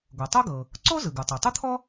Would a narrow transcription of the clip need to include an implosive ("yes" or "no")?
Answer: no